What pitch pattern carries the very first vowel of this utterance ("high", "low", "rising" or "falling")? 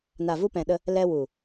low